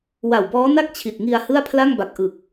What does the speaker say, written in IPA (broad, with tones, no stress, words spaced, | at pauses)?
wa˨˩wbɔː˦˥na˥˩k̚ t͡ɕʰi˨˩t̚ŋi˧a̯hɯ˥˩a̯ pʰla˥˩ŋba˨˩k̚ ʔɯ˨˩k̚